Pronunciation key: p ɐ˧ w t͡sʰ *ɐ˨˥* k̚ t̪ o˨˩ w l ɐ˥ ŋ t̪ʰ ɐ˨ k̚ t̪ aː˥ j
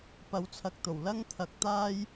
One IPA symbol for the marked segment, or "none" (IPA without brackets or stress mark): ɐ˧